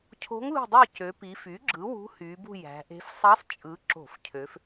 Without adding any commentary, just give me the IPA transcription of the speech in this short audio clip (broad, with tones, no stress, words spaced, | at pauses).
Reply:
cʰo̤˧˥ŋlṳ˦˨dˤy˦˨cø˩˧ pi˩˧fy˩˥ ɡ͡ǁɯ˩˥wṳ˧˥hy˩˧bṳ˦˨ jæ̤˩˧ʔe̤˧˥f sˤɑ˧˥sˤ t͡ʃʼɯ˩˧ ǁo̤˧˩˧fcʰø˩˧f